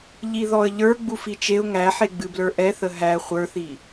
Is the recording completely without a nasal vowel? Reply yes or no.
yes